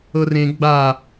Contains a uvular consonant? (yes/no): no